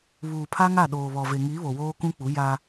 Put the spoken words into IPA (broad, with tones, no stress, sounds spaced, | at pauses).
β uː˨ pʰ a˦ ŋ a˦˨ ɗ oː˨ β ɔ˨ v e˨ ŋ iː˨˦ β o˨ w oː˦ k ũ˦ k͡p u˨˦ j a˦